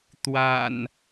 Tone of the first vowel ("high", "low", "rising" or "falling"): low